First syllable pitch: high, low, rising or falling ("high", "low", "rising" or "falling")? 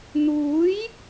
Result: rising